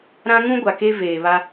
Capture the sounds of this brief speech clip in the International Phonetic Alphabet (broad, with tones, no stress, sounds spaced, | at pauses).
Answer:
ɾ ã˦ ŋ ũ˦ ɡʷ a˨ k e˦ v eː˨ β a˦